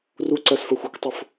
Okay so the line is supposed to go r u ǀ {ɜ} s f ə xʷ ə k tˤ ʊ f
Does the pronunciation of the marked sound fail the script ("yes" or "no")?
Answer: no